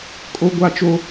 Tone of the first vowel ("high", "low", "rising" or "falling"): high